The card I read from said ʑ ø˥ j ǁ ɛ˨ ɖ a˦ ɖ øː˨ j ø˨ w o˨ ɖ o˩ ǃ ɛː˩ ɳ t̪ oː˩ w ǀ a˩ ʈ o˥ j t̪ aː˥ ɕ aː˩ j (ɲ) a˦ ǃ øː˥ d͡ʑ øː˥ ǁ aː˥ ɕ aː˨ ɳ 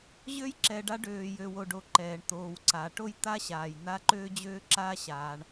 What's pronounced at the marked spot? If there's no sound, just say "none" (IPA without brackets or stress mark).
n̪